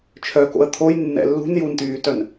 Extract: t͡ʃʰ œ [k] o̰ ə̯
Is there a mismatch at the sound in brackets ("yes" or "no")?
no